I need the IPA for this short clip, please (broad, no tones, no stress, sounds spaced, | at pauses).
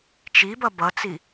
t͡ʃ i b ʌ b ʌ t͡s i